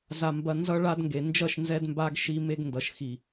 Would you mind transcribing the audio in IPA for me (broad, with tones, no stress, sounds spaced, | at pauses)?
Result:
z a˨ m b ɐ˨ n z ʌ˧ ɭ a˧ d ŋ ɡ e˨ n d͡ʒ ʌ˦˨ ʃ n z ɛ˧ d m b a˧ ɡ ʃ i˧ m e˧ ɡ n d ʌ˨ ʃ x i˨